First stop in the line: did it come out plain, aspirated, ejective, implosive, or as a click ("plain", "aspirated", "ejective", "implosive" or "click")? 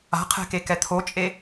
aspirated